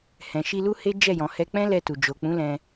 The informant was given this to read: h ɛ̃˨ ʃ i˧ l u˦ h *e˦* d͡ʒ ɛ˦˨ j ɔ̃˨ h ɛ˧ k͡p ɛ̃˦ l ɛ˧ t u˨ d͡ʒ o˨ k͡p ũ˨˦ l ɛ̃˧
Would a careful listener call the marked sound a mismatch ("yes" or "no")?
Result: no